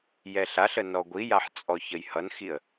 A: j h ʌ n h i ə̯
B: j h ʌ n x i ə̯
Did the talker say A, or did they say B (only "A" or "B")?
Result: B